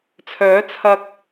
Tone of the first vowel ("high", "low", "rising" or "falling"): rising